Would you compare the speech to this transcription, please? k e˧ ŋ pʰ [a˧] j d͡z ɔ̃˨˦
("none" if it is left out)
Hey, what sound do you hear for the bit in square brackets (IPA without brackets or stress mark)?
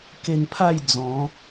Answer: a˥˧